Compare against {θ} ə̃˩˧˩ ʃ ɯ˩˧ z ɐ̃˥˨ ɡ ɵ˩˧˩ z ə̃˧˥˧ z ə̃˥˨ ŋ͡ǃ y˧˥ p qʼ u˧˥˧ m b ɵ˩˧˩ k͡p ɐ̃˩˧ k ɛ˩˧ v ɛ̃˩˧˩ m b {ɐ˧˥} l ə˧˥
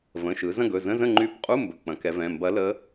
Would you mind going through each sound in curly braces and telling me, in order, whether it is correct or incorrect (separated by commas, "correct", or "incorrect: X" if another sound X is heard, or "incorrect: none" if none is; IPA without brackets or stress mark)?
incorrect: v, correct